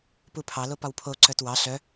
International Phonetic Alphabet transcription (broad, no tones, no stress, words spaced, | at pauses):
pupʰɑlo pɒwpʰoǀœt wɑ ɬœ